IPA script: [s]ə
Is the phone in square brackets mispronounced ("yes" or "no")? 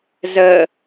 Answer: yes